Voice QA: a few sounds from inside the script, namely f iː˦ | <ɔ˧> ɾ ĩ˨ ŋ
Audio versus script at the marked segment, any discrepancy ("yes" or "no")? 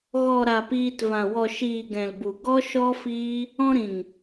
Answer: yes